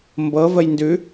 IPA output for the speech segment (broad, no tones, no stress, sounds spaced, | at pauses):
m b ɤ v ə j n d ʉ